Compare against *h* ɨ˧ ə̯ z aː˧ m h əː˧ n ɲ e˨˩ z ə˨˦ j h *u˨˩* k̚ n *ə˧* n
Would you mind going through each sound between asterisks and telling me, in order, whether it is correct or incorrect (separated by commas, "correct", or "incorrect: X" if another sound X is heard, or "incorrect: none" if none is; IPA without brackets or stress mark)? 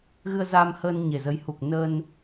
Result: incorrect: ɣ, correct, correct